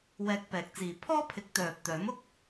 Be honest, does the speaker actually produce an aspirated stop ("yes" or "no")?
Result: yes